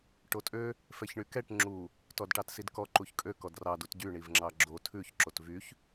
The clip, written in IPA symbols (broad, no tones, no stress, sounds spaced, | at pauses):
ʈ o tʼ ø | f ɛ ç ɳ y k ɛ ʈ ŋ͡ǁ u | t ɔ d ʈ ɑ t s i d k ɔ ǃ u ç kʼ ø k ɔ d r ɑ d u t ɟ y ɳ i v ŋ͡ǁ ɑ ɡ͡ǁ o tʰ ʉ ç ǁ o t v y ç